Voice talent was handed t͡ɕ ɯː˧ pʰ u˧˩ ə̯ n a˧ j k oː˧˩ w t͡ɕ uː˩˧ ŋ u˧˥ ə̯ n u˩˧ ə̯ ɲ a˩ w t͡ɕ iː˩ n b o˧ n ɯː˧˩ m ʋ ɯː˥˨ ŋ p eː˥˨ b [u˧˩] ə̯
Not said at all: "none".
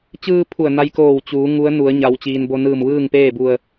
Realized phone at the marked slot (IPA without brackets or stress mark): u˧˩